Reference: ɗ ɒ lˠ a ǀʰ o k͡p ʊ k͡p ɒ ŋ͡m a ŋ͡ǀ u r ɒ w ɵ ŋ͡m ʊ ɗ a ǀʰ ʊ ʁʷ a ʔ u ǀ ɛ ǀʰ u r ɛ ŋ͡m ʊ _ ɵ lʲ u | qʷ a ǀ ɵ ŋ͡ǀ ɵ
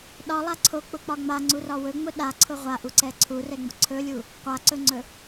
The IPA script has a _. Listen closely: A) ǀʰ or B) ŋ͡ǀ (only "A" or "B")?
A